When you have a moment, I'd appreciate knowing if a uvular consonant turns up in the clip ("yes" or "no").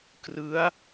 no